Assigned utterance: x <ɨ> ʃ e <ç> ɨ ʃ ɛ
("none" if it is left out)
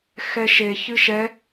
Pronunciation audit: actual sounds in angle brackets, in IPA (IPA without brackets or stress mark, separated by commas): ɛ, ç